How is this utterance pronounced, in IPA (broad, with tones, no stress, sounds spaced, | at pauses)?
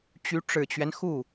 t͡ɕ y˧˥ ʈ͡ʂ ɻ̩˨˩ t͡ɕ ɥ ɛ˦ n x u˥˩